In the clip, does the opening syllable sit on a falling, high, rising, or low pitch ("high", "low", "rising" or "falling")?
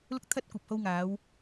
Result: high